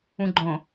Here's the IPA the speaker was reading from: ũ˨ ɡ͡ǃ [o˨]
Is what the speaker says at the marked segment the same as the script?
no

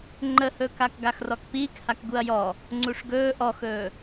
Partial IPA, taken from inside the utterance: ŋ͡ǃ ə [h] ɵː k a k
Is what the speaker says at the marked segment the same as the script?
yes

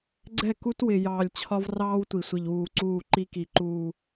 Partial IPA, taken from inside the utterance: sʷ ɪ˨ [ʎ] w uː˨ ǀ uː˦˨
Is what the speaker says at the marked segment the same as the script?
yes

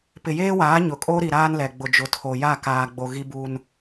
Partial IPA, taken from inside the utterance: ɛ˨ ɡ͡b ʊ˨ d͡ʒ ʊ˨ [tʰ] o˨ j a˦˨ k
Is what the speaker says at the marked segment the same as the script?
yes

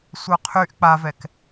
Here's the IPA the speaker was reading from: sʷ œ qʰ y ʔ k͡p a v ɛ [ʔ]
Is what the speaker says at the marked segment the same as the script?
no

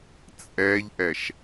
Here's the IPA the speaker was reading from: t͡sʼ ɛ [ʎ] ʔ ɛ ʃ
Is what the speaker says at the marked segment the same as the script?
yes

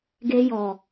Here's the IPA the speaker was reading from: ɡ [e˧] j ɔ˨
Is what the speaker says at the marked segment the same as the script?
yes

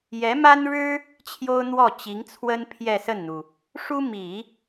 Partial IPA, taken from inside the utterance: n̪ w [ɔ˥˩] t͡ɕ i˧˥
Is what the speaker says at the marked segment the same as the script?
yes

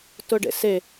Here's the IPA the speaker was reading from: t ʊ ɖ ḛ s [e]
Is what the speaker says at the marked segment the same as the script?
yes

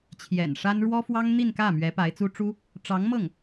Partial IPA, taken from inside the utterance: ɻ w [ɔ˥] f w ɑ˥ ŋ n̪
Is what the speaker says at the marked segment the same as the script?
yes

